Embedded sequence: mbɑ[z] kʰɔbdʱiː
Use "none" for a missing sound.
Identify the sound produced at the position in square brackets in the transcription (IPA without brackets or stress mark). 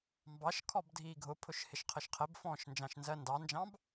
ʃ